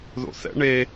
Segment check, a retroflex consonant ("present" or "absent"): present